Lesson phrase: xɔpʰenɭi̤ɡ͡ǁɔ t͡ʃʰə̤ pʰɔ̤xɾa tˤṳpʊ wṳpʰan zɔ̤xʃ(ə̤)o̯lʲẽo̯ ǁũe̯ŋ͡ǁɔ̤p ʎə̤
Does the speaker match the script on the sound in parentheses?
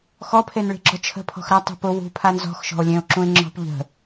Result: no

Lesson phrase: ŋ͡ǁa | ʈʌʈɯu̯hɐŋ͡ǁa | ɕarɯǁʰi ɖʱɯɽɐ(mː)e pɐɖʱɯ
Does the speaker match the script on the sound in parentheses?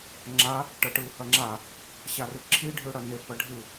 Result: no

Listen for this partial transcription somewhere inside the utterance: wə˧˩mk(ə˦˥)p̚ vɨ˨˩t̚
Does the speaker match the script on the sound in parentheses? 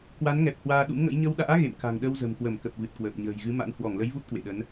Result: no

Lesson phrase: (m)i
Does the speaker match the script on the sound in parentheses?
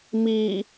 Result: yes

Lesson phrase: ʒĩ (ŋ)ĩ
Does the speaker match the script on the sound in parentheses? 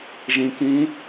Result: no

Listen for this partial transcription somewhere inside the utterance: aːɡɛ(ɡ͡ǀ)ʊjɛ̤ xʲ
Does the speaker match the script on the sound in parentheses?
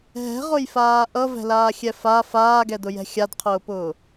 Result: no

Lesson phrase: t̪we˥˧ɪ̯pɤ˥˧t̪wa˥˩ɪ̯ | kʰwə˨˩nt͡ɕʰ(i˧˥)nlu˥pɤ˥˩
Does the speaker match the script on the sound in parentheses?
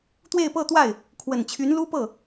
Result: no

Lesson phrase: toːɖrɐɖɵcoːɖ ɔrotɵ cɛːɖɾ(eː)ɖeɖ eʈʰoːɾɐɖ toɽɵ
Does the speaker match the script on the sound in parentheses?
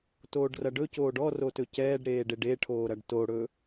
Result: yes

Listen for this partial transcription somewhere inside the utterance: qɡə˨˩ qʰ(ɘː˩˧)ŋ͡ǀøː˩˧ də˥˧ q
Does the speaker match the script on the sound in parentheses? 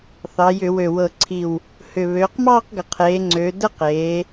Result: no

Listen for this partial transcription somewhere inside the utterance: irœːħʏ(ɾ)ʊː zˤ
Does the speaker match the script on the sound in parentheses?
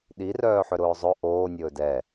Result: yes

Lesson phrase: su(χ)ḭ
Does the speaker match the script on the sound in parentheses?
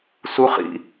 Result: yes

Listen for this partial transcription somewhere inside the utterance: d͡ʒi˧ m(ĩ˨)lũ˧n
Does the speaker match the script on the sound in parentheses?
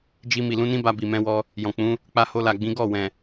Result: no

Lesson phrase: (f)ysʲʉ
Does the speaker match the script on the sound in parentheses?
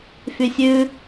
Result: yes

